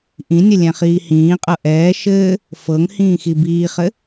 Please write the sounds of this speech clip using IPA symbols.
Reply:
ʔ ĩ nʲ ɘ lʲ ɛ̃ χ iː h ĩː qʼ ɤ ʔ ɛː ʃ ɘː | f ɤ ŋ h ĩː x i b iː χ ɘ

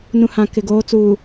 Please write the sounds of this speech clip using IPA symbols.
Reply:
n ũ˨ h ã˨ k ɪ˨ ɡ oː˨˦ t͡s uː˨

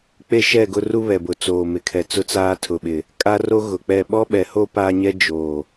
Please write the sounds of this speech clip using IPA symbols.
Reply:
k͡p e˦ ʃ ɛ˦˨ ɡ ʊ˦ r u˦ β ɛ˨ b ʊ˨ t͡s oː˨ m ɪ˨ kʰ ɛ˨ t͡s ʊ˦ t͡s aː˦ tʰ ʊ˨ ɓ ɪ˨ | kʼ a˦ r o˦ ɣ ʊ˨ k͡p ɛ˦˨ ɓ ɔ˦ ɓ ɛ˨ h o˦ p aː˦ ɲ ɛ˦ d͡ʒ oː˨

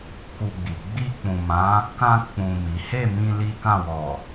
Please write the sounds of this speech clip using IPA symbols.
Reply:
k u˧ ɡ͡b i˨ ɡ͡b i˧ k͡p ũ˨ m ã˨˦ | k ã˧ k͡p ũ˨ m i˨˦ h e˦˨ m ĩ˧ l i˦ k ã˦˨ w ɔ˨

